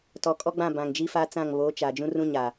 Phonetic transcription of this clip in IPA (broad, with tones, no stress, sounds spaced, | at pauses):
t ɔ˨ kʼ ɔ˦ ɡ͡b ã˦˨ b ã˨ ŋ d͡ʒ i˦ f a˦ t͡s ã˦˨ ŋ β oː˨˦ t͡ʃ a˨ d͡ʒ ũ˦ r ũ˦ ɲ a˨